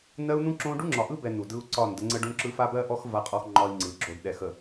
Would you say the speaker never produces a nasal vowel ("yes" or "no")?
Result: no